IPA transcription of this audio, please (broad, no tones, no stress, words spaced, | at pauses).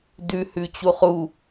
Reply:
dʉ hʉt͡ɕuχu